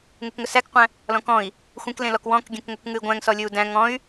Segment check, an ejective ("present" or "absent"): absent